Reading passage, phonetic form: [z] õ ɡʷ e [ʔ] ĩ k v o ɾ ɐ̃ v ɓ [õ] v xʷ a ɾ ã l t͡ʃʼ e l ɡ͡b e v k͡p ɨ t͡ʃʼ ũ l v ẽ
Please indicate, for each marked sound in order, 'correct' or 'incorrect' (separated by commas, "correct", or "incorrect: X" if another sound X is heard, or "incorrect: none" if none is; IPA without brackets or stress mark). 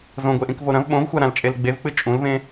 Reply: correct, correct, correct